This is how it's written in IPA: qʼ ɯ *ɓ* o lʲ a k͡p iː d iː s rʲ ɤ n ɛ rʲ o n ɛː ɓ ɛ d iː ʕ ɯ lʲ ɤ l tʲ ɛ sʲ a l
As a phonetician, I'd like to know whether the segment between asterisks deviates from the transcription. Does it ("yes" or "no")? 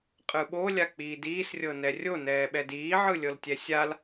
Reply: no